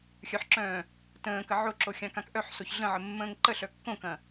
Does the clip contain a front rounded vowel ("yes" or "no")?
yes